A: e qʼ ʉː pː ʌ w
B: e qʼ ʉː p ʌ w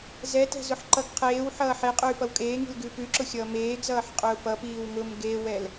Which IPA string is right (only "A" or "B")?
B